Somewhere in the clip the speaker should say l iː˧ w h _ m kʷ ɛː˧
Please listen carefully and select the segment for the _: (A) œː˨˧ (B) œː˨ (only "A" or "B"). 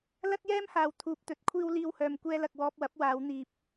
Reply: B